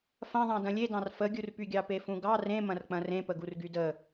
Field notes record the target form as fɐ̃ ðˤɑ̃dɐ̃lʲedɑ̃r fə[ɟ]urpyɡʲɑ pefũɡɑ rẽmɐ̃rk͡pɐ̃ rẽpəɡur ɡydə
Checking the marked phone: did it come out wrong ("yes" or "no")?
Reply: yes